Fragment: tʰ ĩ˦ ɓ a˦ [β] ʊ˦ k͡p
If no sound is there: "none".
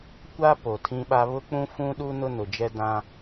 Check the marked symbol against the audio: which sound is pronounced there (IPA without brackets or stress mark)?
β